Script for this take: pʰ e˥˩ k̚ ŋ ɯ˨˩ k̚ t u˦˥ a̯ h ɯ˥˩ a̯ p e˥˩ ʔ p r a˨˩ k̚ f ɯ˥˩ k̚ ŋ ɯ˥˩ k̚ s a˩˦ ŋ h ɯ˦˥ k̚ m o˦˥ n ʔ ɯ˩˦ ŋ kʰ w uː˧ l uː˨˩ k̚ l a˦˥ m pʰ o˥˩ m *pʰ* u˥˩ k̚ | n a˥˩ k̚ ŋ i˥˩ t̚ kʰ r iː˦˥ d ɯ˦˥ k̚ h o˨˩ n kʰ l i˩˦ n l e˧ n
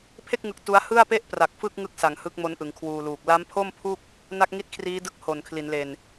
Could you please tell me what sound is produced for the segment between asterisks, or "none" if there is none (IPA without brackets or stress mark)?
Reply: pʰ